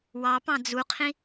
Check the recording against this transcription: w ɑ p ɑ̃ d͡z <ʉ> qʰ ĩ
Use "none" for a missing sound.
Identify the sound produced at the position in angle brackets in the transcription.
u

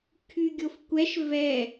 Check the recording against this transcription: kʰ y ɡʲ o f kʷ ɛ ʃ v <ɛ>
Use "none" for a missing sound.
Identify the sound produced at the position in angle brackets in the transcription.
ɛ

